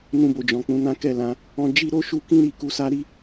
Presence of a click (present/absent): absent